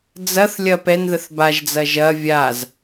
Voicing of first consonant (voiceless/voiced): voiced